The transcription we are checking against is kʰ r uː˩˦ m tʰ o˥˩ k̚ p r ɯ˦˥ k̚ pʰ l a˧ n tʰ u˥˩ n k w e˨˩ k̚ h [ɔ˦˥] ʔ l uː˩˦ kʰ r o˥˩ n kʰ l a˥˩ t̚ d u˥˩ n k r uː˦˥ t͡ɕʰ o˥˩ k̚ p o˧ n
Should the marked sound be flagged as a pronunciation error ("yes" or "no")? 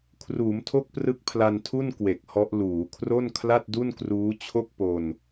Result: no